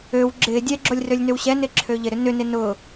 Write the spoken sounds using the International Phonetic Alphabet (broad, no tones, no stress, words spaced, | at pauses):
øw ɡ͡ǁɪ dʲɛɡ͡ǁolʲrølʲnøw ɕɛnɪǁʰø ʎɪɾʏ nʏnɪ nʊ